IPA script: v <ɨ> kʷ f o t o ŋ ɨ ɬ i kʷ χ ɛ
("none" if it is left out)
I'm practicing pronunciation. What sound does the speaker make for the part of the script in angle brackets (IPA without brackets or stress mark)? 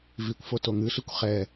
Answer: i